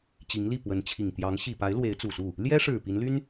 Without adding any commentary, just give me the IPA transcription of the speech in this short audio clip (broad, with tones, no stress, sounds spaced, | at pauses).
t͡ɕ i˧˥ ŋ l i˥˩ p w ə˧˥ n t͡ɕʰ i˨˩ ŋ t̪ j ɑ˧˥ ŋ ɕ i˨˩ p a˧˥ ɪ̯ l w e˧˥ ɪ̯ t͡s u˨˩ s u˥˩ | l j ɛ˥ ʂ ɻ̩˨˩ p i˧˥ n l y˥ n